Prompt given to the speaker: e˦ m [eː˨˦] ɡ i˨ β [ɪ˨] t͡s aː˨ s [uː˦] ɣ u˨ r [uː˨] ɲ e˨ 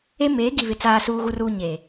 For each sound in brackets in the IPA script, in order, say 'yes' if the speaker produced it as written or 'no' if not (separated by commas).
yes, yes, no, yes